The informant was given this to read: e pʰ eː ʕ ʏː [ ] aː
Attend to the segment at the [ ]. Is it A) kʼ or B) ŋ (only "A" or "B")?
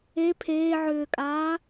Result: A